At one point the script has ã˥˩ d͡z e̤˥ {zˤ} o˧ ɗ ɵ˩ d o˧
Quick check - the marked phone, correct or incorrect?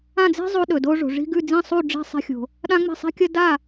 correct